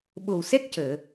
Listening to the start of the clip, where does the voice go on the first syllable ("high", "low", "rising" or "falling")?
low